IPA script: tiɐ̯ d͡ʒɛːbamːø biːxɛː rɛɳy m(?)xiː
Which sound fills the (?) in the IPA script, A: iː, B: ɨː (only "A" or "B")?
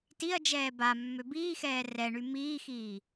A